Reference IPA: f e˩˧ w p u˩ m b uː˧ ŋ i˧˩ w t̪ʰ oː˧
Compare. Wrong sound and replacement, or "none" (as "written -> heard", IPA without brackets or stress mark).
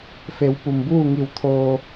uː˧ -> uː˥˨